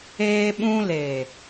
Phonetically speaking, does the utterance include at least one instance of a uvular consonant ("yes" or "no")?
no